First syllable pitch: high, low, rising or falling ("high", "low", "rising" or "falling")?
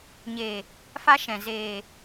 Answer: low